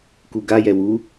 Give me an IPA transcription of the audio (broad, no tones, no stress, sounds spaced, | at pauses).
k u ɡ a j ɛ w u